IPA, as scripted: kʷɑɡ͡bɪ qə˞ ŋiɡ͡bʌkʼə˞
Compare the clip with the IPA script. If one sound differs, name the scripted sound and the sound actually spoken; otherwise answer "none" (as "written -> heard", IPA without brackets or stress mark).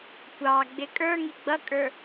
q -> kʼ